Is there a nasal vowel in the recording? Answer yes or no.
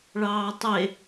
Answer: no